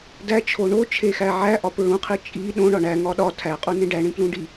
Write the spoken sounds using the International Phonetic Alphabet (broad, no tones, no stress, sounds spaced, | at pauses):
d æ t͡ʃʰ o ɳ o t͡ʃʰ e x æ ʕ æ ʔ ɒ p ɹ ũ qʰ i t͡ʃʼ i ɗ õ ɳ ɒ ɳ æ ŋ ɒ ɗ ɒ tʰ æ qʼ u n ẽ ɖ æ ɳ ĩ p l ũ ɖ i